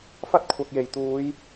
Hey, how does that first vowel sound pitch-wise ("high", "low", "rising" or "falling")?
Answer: high